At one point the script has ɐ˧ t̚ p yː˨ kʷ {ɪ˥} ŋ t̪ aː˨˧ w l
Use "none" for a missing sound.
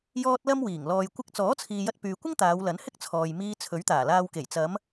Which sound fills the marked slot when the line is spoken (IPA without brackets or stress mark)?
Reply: ɪ˥